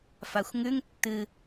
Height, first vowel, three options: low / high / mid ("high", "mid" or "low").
low